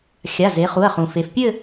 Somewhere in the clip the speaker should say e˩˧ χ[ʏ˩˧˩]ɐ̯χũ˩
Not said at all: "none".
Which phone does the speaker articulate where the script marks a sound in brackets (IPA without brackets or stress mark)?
u˩˧˩